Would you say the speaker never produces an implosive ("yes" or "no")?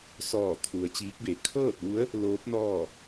yes